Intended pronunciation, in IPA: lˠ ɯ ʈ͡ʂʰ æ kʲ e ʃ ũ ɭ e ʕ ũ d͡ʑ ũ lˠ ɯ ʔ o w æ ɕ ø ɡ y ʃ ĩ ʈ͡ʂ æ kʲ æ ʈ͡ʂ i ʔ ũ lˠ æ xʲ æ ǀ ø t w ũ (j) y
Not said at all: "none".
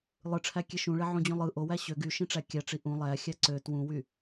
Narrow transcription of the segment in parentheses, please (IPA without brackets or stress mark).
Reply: w